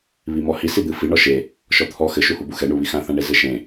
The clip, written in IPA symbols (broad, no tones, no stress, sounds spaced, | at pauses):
β i m ɔ h i s i d̪ ɨ f i ɳ ɔ ʃ e | ʃ ɔ t̪ʰ ɔ x ɘ ʃ u h u b u x ɛ ɳ u β i x ã θ ã ɳ e z ɘ ʃ ẽ